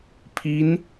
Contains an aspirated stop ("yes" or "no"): yes